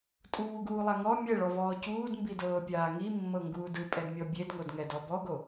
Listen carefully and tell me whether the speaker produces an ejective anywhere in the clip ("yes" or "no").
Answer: yes